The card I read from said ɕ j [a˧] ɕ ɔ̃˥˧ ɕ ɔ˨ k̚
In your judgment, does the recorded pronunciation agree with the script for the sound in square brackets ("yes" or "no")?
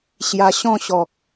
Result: yes